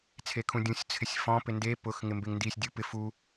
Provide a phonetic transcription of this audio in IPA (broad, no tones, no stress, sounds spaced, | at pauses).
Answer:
t͡sʰ e kʰ ũ dʲ ũ sʲ t͡sʰ ɪ sʲ f ɔ̃ p ɪ n d e p ʊ x ŋ ɪ m b e ŋ n d i sʲ dʲ u p ɪ f u